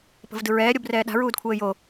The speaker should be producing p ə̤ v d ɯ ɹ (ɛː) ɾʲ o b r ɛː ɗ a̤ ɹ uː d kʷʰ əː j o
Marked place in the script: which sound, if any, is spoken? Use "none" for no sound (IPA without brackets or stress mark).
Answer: ɛː